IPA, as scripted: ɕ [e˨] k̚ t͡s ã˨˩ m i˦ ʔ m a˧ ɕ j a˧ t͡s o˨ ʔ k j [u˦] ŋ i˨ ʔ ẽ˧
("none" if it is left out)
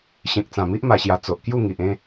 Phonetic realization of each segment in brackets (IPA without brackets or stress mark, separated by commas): ẽ˨, u˥˧